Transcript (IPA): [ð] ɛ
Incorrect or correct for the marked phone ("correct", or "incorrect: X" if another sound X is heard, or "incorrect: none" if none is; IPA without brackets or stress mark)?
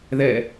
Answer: correct